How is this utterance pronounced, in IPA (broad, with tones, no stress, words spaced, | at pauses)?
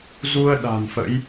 zu˧ə̯ ɗa̤˨˩nfə̰˧˥j